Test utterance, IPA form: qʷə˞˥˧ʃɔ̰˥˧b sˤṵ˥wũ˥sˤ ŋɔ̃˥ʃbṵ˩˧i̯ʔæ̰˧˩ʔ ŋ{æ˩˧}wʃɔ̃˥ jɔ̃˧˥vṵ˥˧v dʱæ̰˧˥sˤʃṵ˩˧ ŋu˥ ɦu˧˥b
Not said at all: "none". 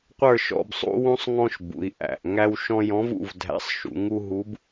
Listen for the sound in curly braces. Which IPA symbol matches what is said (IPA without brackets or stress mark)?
æ˥